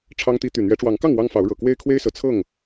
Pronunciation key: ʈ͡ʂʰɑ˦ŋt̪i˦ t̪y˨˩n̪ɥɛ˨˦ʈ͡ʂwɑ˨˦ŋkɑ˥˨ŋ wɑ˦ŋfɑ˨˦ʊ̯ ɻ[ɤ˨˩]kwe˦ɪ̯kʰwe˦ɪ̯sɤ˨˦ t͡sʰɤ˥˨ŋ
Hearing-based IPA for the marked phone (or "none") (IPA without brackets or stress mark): ɤ˨˩